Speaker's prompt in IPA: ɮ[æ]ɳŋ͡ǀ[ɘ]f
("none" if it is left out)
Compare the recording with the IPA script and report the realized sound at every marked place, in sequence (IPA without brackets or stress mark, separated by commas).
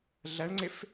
æ, e